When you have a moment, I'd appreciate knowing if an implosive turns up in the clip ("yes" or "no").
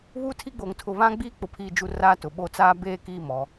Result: yes